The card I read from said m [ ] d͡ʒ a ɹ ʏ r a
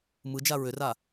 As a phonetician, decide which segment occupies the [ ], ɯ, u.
ɯ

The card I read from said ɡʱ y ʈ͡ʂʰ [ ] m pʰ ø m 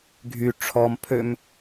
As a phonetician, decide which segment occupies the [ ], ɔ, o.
ɔ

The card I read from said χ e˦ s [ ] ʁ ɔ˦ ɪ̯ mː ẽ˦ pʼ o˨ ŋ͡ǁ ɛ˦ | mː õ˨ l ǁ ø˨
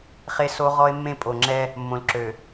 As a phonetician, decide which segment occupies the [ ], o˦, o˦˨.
o˦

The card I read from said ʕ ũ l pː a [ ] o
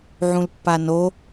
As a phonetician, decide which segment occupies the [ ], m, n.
n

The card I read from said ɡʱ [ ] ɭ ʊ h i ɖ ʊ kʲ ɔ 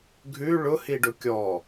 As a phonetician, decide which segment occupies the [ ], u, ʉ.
ʉ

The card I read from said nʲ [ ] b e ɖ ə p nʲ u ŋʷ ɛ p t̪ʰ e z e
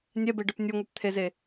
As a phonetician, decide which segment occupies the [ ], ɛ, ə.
ɛ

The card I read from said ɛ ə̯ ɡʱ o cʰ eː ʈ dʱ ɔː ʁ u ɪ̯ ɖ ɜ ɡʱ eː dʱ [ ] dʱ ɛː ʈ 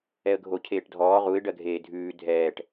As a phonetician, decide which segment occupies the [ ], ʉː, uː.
ʉː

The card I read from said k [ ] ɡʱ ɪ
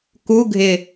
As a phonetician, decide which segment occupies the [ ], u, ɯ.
u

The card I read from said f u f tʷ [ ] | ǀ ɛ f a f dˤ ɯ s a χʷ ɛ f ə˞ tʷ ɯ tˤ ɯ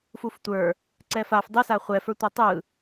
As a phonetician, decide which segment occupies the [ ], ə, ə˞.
ə˞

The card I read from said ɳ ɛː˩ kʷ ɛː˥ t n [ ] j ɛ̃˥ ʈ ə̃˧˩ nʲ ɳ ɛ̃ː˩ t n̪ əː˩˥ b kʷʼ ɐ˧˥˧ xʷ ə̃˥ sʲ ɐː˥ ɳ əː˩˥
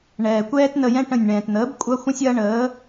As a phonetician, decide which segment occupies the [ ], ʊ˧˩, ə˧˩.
ə˧˩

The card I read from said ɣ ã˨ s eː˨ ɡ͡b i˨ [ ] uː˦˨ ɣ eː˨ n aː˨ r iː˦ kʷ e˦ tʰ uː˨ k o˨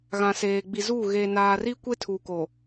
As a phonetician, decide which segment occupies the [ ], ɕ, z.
z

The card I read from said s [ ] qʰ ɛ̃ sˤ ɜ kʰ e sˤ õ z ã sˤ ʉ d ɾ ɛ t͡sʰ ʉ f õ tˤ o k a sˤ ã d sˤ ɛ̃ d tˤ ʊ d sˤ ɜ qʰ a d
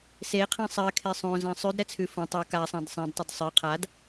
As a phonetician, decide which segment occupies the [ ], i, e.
e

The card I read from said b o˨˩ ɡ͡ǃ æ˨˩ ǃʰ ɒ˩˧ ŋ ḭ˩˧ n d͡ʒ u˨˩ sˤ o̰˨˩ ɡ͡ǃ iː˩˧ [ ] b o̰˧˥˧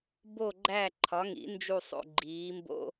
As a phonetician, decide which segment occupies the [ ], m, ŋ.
m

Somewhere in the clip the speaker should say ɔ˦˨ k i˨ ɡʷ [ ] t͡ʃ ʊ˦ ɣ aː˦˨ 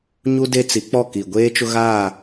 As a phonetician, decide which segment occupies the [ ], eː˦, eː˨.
eː˦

